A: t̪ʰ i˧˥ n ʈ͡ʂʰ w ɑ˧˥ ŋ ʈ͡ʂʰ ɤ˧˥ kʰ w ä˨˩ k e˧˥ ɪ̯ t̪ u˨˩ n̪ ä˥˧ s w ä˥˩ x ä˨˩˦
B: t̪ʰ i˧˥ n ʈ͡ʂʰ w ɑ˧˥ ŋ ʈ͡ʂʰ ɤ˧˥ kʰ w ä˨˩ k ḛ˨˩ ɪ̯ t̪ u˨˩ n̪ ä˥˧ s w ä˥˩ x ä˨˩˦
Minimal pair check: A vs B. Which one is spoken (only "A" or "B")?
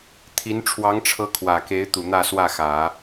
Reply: A